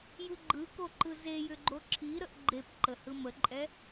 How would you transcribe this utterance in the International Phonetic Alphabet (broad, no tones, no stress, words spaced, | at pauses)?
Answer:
jɯɡ͡ǃɯkoǃɯ zejʏɡ͡ǃo ǁʰiɾəʔ ɡ͡ǃep ǃəhɯməǃʼɛ